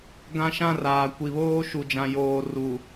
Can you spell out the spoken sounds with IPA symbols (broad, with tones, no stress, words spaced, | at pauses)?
ɡã˦ʃã˦raː˨ kʷi˨βoː˦ʃu˨d͡ʒã˨ joː˨ ru˨